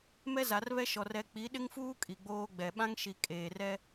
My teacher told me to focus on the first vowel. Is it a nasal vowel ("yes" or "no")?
no